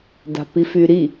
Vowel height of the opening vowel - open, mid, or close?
open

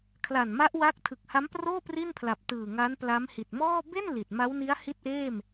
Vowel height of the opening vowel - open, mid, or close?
open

